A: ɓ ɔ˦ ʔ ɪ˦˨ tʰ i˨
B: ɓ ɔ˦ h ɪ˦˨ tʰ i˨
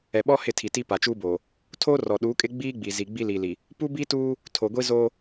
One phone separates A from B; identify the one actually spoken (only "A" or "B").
B